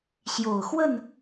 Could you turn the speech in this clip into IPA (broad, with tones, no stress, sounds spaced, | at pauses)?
ɕ j o˨˩ ʊ̯ x w ə˥˨ n